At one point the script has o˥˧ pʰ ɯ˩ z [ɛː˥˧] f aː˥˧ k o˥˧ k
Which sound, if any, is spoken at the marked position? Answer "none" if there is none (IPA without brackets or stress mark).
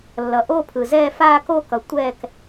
ɛː˥˧